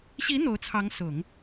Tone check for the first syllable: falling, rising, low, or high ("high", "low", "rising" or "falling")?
rising